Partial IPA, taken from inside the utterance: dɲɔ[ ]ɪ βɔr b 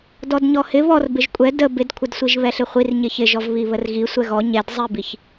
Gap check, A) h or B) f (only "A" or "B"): A